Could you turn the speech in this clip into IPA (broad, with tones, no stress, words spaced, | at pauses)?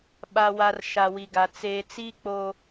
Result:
ɓa˨wa˨r ʃa˨wi˨ɡa˨ t͡seː˨ t͡si˦ k͡poː˦